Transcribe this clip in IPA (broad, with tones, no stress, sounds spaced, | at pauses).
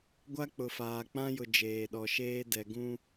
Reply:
ɡʷ a˦ k͡p ʊ˨ f aː˨ k͡p ã˦ j ʊ˨ d͡ʒ eː˨ ɗ ɔ˨ ʃ eː˦ d ɛ˨ ɡ ũ˦